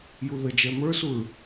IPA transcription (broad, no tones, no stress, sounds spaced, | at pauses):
j u ð ə d͡ʒ ɛ m ə˞ s u ɹ